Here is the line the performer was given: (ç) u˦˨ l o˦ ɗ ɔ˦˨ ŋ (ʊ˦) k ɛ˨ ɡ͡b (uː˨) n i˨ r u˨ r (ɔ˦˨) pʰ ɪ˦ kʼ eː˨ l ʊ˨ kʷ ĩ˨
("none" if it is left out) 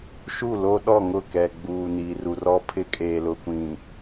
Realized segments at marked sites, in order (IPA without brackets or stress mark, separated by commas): ʃ, ʊ˦˨, uː˨, ɔ˦